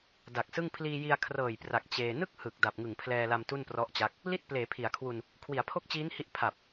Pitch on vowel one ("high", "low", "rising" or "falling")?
low